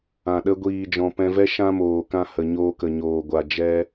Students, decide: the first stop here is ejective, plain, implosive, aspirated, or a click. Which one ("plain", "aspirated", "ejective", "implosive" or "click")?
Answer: implosive